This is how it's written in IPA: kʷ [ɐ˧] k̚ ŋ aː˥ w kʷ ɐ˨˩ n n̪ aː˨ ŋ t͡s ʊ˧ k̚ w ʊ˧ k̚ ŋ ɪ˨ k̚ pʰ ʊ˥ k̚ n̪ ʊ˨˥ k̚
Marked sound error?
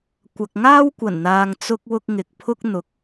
yes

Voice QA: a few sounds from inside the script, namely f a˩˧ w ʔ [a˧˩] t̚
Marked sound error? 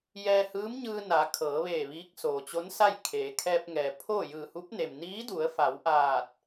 yes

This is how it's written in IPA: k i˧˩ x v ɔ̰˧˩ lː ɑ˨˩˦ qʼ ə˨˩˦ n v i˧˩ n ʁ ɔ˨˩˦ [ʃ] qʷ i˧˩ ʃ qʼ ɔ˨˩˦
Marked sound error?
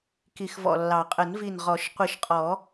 no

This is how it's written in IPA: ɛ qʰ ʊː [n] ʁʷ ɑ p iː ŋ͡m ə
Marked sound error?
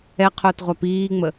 yes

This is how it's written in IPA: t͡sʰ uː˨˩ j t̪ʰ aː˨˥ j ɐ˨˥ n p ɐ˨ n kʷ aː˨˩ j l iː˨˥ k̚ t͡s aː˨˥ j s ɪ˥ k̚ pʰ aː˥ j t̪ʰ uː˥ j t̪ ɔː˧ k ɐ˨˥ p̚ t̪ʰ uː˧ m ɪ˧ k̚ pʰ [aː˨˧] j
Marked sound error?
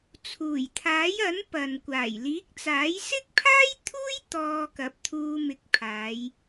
no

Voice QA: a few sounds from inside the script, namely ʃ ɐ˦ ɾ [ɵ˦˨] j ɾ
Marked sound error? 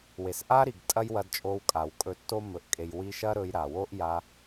yes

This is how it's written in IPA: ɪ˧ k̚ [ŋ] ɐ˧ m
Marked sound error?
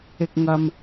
no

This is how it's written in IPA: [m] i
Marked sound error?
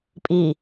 yes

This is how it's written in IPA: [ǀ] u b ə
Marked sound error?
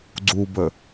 yes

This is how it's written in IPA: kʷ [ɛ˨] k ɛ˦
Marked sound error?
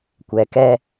no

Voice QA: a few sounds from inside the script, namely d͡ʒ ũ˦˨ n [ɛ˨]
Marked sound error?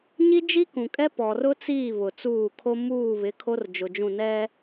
yes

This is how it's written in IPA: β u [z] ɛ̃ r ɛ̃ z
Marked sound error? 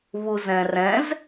no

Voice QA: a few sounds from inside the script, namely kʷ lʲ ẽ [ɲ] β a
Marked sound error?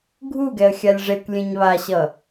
no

